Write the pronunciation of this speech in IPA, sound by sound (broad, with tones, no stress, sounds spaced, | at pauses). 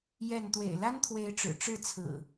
j ɛ˥˨ n t̪ w ḛ˨˩ ɪ̯ l a˦ n t̪ʰ w e˨˦ ɪ̯ ʈ͡ʂ ɻ̩˨˩ ʈ͡ʂ ɻ̩˥˨ t͡sʰ ɹ̩˨˩